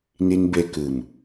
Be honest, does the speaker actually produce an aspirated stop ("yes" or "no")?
no